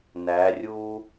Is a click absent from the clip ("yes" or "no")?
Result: yes